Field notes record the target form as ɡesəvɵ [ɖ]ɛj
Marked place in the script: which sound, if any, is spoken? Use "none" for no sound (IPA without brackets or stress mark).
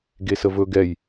ɡ